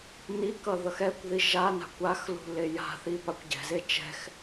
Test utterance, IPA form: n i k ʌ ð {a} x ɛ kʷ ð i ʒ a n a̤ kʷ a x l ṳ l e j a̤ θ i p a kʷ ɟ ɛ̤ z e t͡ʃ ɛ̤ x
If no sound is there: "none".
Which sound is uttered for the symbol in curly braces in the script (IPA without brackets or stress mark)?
ʌ